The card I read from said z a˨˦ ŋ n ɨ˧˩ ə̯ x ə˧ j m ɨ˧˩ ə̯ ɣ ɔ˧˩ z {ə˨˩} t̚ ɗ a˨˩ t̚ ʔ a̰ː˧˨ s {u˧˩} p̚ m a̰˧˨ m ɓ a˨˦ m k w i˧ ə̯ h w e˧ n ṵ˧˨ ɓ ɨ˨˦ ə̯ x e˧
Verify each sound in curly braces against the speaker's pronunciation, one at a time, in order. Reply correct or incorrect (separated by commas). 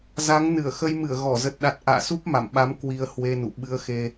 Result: correct, incorrect